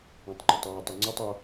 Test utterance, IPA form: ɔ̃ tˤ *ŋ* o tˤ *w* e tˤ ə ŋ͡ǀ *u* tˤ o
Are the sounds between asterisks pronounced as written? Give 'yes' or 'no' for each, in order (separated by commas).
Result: no, yes, yes